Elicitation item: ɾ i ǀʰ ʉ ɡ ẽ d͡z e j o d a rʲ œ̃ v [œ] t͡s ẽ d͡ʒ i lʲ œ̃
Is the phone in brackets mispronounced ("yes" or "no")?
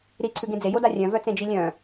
no